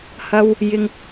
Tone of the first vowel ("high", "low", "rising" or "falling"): high